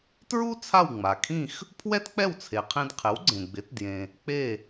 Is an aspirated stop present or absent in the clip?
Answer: present